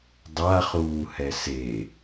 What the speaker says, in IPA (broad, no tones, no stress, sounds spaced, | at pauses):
dˤ a χ uː h ɛ s e